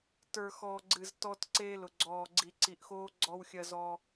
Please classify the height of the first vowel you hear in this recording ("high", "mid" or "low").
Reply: mid